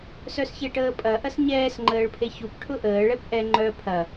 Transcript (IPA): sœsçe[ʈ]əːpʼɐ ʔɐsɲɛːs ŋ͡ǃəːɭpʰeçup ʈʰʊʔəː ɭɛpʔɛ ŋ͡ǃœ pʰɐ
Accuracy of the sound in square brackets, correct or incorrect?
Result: correct